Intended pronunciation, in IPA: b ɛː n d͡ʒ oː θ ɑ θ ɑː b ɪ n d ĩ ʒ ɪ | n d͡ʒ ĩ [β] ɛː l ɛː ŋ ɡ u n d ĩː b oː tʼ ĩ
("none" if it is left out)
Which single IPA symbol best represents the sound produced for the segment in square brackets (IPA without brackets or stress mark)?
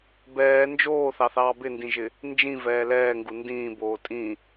v